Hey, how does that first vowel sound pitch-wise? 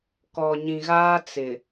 low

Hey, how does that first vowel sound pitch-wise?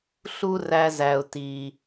high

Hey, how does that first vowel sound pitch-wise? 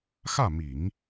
falling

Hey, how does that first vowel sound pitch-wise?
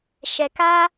low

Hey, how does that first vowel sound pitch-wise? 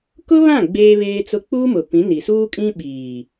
high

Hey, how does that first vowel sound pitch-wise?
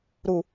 low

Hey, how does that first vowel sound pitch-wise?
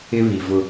high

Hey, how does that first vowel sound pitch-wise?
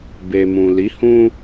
low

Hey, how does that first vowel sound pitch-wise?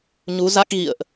rising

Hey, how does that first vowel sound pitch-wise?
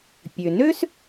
low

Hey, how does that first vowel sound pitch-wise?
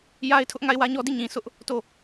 high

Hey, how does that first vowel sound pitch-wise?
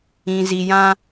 low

